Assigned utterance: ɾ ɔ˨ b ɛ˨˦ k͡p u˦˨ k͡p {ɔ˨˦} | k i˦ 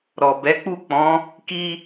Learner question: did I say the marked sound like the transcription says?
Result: no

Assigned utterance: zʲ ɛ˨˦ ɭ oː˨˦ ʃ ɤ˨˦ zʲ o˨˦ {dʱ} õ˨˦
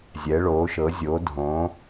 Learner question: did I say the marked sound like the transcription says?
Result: yes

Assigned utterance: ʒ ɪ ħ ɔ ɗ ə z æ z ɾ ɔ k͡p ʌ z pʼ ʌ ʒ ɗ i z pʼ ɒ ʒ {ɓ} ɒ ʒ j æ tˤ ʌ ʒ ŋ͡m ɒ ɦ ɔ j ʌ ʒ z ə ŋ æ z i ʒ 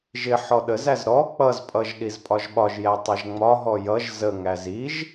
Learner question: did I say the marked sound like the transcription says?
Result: yes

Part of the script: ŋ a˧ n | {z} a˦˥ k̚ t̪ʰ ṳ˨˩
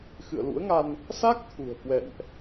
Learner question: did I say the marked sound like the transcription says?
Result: no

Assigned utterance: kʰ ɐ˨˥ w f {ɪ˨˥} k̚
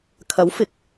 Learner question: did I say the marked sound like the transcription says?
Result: yes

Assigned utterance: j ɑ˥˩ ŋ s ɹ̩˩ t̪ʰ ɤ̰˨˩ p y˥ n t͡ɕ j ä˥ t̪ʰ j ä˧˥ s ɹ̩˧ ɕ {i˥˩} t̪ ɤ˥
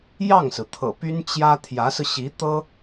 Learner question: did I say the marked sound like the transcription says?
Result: no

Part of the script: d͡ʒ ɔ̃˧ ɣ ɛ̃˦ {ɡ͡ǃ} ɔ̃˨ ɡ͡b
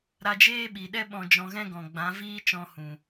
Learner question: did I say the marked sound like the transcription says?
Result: no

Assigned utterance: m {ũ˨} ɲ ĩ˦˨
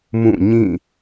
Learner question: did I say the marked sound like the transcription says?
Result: no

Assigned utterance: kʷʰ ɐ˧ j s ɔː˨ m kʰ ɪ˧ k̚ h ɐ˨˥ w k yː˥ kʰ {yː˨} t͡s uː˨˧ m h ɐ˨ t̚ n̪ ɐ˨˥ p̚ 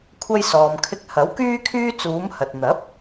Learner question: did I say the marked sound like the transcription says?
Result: no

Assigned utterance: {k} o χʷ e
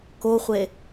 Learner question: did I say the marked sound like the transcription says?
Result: yes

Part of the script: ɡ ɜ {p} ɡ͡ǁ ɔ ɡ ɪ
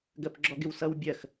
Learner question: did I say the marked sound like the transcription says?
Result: yes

